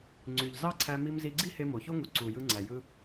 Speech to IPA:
ŋ͡ǀ y˩ ʎ z ɑ˥ ǀʰ æ˧ m i˧ m z i˧ ɡ͡ǀ i˥ h e˧ m o˩ ç o˥ ŋ u˩ ǀ u˩ j ɯ˧ ŋ͡ǀ æ˩ j ɯ˧

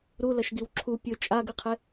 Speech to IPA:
ɾ u l ɐ ʃ ɡ i w ǁʰ u pʲ ɵ t͡ʃʼ a ɡ ɨ qʰ e

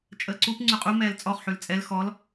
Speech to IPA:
t͡ʃʼ əː ǀ u p ŋ͡ǀ ʉ qʼ u m ɛː l t͡sʼ ɔ χ ħ ʉ l t͡sʼ ɛ l x ɔ l

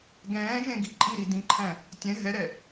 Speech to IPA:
ɡ ɛ̃ː ʒ ẽ ɡ i ǃʼ i ɾ i d ĩ ǃʰ æ̃ | tʲ ɛ̃ ɦ ɛ ɾ ɛ

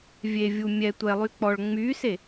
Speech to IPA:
vʲ e vʲ u mʲ ɛ tʷ ɛ lˠ y k͡p ɔ ɭ ŋ͡m y s e

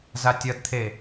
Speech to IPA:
z a tʲ ʌ d t̪ʰ e

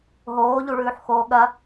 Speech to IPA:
ɦ oː ʎ u ɭ ʉː ħ x oː ɠ ɐ

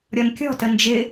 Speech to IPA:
ɾʲ ɔ n kʲ ɔ̤ t ə n d͡ʒ ɪ

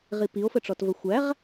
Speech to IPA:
ʁ i p i o̯ f ə ʈ͡ʂ ɔ t v ə xʷ æ ʁ

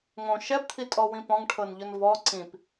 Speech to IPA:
ŋ õ ʃ ɛ p t̪ʰ i tʼ ɔ w ĩ p ɔ̃ ŋ ʈʰ ɤ n ʎ ʊ n v ɔ ǀ ĩ p

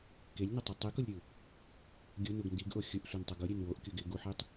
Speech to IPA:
k e lʲ n ɪ tˤ ʊ tˤ i k ʊ lʲ ɾʲ u | ɡʲ ʊ n u ɡ n d i ɡ ʔ o xʲ ʊ ʔ sʷ i n tˤ ʊ ɡ ʊ ɾʲ e n w o ʔ kʲ u ɡ ɪ ɡ u ħ i tˤ

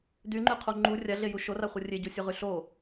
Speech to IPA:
d y ŋ͡ǃ y qʰ o ŋ͡ǃ u rʲ a ɮ e j u ʃ o r a χʷ ɤ rʲ e ɟ u sʲ o ʁ y ɬ o

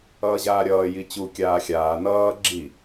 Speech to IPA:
ʌː ʑ aː ɾʲ ʌː j i t͡ɕ u kʲ aː xʲ aː n ʌː ɡ͡ǁ i

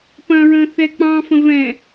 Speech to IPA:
p ɐ̃ ɹ ə̃ θ ɛ k͡p ɑ̃ f ə̃ v ɛ̃

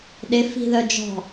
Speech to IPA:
ɗ ɪ f i̤ ð œ d͡ʒ ɔ̤

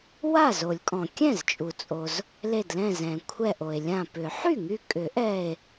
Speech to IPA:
w a˥˩ z o˨˩˦ lʲ kʼ ɔ̃˩ kʲ ɛ̃˥˩ z t͡ʃʼ u˩ t͡sʼ o˩ z | l e˧˩ d l ɛ̃˧˩ z ɛ̃˩ kʷʰ ɛ˧˩ ʔ o˩ e̯ lʲ ã˧˩ p ʏ˨˩˦ ħ y˥˩ ŋ y˧˩ kʼ ʏ˨˩˦ ʔ ɛ˧˩ e̯

